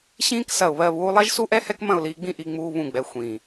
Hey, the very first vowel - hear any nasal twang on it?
yes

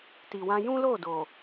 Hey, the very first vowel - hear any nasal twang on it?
no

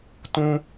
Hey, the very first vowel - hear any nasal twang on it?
yes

